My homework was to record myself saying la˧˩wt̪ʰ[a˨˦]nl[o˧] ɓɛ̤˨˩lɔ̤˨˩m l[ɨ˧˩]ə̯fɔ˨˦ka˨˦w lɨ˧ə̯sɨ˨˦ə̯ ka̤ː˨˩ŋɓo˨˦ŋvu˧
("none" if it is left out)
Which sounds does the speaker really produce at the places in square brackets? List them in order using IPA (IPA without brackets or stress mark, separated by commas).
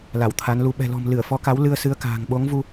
a˨˦, u˧, ɨ˧˩